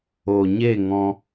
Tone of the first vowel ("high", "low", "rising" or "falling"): low